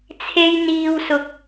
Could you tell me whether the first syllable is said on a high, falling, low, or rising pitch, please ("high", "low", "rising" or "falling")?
high